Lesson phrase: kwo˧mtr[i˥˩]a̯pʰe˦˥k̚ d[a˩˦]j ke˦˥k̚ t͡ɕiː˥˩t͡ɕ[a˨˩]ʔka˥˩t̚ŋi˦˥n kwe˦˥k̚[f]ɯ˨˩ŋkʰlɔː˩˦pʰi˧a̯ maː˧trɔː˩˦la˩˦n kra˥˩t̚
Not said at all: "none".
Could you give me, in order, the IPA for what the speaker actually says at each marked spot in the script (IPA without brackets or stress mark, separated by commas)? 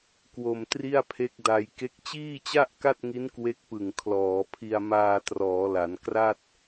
i˥˩, a˧, a˥˩, p